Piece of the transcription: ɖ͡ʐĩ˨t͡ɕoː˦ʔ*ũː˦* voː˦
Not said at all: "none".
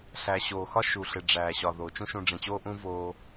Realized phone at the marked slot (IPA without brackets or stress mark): ũː˦